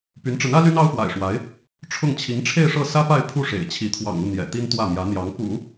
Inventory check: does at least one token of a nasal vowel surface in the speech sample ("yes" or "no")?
no